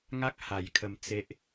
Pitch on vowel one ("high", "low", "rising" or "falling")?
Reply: high